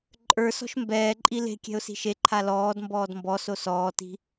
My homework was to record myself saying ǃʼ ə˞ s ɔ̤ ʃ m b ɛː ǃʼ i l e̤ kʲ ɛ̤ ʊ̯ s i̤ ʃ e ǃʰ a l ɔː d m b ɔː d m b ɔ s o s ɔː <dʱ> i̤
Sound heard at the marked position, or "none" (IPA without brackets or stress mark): t